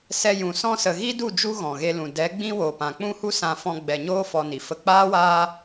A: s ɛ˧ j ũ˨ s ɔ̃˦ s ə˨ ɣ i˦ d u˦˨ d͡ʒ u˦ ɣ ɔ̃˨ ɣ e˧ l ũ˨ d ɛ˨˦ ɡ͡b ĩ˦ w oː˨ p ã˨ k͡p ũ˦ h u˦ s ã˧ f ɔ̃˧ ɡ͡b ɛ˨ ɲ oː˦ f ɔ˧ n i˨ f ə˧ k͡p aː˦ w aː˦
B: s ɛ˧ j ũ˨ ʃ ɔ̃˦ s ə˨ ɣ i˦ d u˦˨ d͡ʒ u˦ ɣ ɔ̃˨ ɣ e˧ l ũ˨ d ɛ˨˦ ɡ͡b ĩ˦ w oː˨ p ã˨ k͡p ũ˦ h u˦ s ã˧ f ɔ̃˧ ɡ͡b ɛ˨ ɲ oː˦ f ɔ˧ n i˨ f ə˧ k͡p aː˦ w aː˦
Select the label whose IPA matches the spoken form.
A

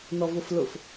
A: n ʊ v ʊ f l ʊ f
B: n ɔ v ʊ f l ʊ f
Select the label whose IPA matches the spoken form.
B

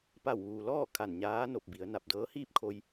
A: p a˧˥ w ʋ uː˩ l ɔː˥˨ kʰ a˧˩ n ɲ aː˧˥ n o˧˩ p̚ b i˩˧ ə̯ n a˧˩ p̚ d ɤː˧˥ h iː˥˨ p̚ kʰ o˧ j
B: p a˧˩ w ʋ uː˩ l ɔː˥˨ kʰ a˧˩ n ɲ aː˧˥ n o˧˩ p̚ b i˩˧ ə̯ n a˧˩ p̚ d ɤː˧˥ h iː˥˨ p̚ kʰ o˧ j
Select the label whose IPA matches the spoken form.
B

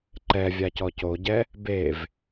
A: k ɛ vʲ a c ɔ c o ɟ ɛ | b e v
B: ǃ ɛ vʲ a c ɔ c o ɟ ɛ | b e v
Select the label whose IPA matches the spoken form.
B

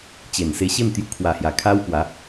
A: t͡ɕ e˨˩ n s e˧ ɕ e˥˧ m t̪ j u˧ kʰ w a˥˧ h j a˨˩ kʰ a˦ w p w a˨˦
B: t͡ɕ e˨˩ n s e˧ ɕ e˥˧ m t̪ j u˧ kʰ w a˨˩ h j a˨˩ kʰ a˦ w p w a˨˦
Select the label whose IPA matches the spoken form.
B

